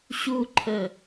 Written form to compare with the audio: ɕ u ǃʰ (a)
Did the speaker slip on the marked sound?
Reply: yes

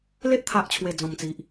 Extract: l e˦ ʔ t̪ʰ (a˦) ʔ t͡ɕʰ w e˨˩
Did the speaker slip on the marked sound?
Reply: yes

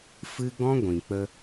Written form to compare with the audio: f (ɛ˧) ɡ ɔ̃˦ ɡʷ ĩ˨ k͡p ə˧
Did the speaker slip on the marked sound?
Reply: yes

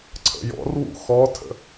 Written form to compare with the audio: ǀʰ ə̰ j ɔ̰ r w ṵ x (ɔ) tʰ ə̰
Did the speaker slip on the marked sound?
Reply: no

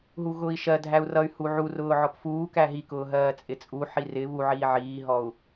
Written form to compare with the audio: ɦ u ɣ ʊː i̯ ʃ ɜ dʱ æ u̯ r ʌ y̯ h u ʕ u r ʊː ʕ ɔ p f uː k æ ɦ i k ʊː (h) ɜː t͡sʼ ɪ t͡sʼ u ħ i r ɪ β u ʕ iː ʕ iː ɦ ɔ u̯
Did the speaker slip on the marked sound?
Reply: yes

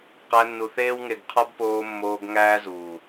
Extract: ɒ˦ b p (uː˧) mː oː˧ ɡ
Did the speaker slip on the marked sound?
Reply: yes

